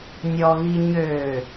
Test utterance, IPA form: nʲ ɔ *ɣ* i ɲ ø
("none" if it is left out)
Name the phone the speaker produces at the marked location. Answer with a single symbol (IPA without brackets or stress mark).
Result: ɣ